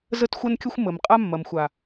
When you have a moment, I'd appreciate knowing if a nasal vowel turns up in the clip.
no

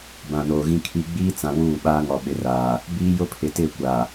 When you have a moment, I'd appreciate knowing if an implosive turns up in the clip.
yes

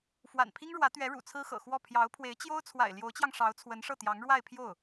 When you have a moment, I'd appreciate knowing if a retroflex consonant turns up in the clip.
yes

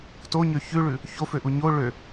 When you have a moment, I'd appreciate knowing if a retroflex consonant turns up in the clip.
yes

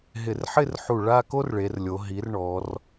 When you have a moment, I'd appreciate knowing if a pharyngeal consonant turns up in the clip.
yes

